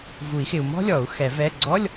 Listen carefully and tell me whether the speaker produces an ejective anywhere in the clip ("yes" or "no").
no